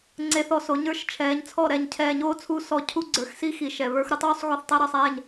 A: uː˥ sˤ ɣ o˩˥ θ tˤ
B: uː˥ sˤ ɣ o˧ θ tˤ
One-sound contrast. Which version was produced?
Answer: B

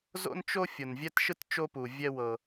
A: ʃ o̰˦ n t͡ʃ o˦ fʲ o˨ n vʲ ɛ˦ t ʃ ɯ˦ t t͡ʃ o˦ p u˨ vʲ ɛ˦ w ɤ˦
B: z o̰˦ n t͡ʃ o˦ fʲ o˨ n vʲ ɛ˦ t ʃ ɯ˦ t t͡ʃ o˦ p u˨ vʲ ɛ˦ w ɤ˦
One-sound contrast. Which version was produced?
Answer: B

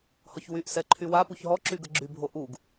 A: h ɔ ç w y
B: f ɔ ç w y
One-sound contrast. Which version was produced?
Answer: A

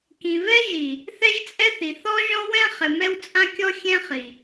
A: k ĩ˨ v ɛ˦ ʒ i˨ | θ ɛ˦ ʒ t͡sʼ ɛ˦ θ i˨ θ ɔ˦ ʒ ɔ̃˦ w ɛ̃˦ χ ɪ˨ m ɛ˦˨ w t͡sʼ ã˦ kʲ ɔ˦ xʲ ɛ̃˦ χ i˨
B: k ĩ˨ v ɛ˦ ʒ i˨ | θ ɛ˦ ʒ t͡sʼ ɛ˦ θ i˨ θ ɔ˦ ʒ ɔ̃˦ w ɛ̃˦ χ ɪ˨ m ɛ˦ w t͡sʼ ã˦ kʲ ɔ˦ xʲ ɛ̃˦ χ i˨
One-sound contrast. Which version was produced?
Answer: B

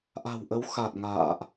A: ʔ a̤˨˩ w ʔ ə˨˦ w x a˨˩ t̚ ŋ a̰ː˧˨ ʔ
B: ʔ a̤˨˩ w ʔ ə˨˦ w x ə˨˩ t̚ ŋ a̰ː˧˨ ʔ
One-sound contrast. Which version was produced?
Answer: A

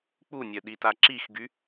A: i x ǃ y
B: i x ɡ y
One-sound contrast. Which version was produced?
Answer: B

